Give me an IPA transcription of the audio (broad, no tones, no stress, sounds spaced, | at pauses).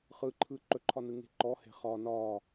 χ ɯ ǃʰ ɯ ǃ ɵ ǃʰ ɒ n ɯ ŋ e̤ ǃ ɔ h e̤ χ ɒ n ɒ